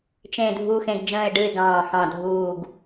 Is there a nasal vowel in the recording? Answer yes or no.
yes